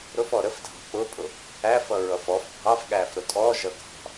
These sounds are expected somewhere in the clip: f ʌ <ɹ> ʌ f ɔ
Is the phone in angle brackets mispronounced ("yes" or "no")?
no